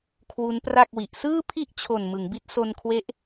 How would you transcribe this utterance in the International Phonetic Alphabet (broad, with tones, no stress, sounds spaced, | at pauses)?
kʰ w u˦˥ n p r a˥˩ k̚ w i˨˩ ʔ s ɯː˥˩ pʰ i˥˩ ʔ t͡ɕʰ o˨˩ n m ɯ˩˦ ŋ b i˦˥ t̚ s o˧ n kʰ w e˦˥ ʔ